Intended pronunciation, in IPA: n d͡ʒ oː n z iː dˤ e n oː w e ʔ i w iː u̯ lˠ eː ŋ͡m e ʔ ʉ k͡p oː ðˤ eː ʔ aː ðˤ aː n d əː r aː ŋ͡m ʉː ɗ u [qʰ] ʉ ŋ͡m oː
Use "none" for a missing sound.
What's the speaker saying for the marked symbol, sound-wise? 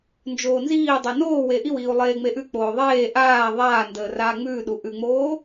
ʔ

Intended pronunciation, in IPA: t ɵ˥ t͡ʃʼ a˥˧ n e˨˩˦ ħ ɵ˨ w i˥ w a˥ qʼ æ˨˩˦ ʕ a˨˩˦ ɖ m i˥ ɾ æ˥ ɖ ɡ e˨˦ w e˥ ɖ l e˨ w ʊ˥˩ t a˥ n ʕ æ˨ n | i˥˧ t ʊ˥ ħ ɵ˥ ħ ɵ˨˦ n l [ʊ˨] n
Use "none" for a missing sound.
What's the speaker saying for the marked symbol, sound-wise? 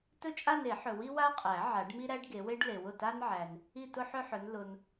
ʊ˨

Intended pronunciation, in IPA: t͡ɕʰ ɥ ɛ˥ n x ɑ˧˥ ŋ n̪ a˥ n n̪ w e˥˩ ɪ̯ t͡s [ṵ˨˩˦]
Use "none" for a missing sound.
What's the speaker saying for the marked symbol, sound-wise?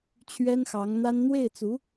u˧˥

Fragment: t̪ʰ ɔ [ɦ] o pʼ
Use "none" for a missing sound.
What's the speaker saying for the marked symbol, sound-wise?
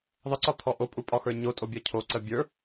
ʔ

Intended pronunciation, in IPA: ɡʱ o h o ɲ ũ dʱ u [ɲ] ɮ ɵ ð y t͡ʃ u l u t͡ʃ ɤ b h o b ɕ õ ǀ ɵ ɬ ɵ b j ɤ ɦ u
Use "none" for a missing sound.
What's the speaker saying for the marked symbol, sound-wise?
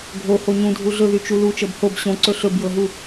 none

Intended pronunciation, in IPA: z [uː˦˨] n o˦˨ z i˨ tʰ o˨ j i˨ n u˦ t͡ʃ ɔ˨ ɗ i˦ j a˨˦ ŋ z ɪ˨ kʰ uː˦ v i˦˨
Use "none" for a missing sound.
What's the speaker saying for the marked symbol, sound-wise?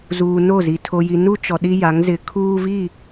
uː˨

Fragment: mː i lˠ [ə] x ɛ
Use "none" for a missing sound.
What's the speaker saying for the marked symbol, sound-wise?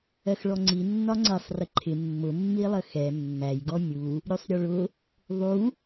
ə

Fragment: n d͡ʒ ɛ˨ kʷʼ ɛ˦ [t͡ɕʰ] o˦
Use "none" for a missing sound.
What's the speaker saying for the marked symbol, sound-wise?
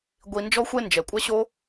ɕ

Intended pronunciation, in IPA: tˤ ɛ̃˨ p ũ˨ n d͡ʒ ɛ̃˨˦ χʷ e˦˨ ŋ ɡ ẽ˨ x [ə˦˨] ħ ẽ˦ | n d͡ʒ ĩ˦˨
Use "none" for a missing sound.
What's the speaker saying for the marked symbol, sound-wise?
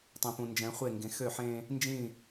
ø˦˨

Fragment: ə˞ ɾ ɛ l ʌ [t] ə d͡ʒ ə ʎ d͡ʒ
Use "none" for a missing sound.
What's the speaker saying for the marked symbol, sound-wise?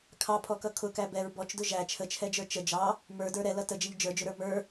t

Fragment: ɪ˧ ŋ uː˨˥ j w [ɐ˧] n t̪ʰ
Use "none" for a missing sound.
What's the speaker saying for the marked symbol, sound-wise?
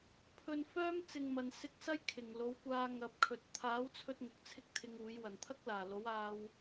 ɐ˨˩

